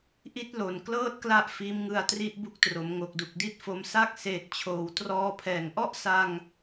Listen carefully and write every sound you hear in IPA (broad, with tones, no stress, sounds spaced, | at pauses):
ʔ i˥˩ t̚ l o˨˩ n k l ɤː˥˩ t̚ k l a˦˥ ʔ f iː˦˥ m ŋ ɯ˧ a̯ t r i˥˩ ʔ b u˦˥ k̚ t r o˩˦ m ŋ o˨˩ k̚ d u˨˩ k̚ d i˥˩ t̚ f o˧ m s a˥˩ k̚ s eː˨˩ t̚ t͡ɕʰ oː˩˦ w t r ɔː˧ pʰ ɛː˨˩ ŋ ʔ ɔ˥˩ ʔ s a˧ ŋ